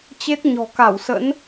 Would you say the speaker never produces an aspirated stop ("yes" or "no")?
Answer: yes